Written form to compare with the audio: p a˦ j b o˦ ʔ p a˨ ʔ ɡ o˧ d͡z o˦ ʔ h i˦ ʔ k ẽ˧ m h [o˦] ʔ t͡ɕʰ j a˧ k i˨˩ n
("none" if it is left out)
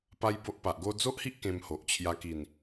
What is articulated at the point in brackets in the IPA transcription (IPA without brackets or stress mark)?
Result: o˨